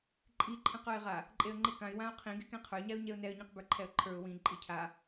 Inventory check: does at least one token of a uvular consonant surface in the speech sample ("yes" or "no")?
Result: yes